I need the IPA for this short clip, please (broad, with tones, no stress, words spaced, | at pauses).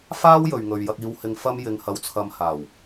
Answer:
faː˥w jɵ˨ɥŋɵ˨ɥjɐ˧k̚ iː˧whɪ˧ŋ fɐ˥mjɪ˧ŋhɐ˧wt͡sʰɐ˧m haː˨˩w